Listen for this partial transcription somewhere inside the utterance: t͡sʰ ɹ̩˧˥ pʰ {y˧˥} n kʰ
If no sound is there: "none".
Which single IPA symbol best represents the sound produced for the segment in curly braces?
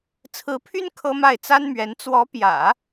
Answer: y˥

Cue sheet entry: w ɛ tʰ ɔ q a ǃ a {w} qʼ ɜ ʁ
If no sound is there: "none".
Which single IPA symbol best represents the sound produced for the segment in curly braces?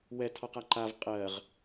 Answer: v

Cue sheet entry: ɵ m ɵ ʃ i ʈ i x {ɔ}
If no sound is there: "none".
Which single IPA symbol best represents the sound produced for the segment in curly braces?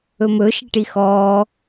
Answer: ɔː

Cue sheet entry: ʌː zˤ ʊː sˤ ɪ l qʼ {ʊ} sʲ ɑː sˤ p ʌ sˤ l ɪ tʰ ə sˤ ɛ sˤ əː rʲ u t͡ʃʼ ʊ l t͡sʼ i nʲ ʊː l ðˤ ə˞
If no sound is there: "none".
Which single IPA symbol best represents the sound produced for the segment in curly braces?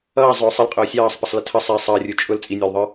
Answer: ʊː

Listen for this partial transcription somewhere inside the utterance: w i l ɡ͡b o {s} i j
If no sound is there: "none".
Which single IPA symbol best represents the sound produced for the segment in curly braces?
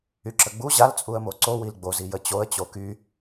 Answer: z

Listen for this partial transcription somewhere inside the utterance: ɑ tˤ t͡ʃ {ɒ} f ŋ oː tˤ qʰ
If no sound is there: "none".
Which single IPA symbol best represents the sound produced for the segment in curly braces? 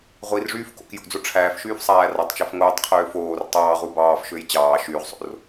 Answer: ɑ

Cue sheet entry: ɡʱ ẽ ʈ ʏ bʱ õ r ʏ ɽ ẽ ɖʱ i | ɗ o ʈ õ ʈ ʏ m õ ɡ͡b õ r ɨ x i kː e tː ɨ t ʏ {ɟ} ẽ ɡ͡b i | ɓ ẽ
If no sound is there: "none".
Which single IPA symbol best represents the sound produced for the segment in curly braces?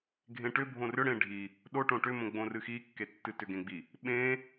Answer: ɡ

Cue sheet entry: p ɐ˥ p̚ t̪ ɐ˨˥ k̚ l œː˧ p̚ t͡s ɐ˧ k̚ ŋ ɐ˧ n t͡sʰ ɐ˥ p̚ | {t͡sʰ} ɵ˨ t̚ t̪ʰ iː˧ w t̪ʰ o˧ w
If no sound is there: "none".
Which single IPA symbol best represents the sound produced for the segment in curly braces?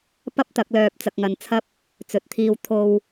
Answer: t͡s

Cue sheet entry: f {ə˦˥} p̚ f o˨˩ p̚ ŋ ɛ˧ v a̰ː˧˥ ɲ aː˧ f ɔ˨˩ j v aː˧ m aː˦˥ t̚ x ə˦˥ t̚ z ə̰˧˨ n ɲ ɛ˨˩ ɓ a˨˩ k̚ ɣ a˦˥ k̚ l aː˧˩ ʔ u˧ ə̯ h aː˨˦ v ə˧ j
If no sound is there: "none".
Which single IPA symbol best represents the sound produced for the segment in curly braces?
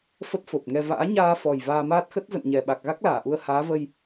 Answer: ə˦˥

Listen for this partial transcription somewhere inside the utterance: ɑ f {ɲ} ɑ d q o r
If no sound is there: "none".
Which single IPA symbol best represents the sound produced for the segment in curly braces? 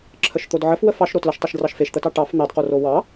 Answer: n̪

